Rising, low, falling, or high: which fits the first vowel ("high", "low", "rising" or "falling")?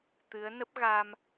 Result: rising